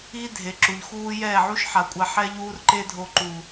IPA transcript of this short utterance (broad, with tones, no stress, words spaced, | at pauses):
i˦dʱe˨ ǁu˨ʎxuː˦ jɛː˦˨ʕu˦ʃħa˨kʷʼa˧ ħɛ˦ʎuː˦rǃe˦dʱo˧ ǃu˨